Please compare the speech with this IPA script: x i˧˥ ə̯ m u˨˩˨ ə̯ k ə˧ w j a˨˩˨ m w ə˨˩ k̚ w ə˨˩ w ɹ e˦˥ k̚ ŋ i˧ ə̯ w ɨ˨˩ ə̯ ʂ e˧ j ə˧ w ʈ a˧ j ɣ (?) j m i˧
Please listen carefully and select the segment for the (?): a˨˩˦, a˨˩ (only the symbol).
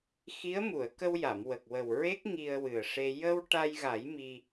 a˨˩˦